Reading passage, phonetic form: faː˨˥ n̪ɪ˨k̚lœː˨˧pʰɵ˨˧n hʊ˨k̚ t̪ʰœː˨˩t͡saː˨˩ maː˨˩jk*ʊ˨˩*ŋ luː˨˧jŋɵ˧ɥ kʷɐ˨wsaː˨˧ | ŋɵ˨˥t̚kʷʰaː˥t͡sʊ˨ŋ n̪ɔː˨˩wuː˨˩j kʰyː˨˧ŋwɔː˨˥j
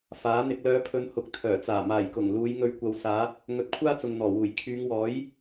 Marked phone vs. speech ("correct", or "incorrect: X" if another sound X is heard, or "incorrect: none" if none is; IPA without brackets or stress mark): correct